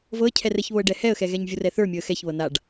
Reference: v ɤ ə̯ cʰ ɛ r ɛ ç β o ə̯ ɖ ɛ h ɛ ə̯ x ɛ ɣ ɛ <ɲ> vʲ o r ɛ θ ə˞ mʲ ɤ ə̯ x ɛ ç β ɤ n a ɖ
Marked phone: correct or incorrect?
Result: correct